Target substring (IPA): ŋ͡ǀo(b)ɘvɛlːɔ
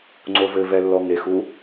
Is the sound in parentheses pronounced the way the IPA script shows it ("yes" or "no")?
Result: no